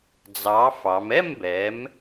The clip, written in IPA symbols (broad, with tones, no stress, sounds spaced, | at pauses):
d͡z ɑ˨˥ f ɑ˩˧ m ɛ˥˧ m b ɛ˩˧ m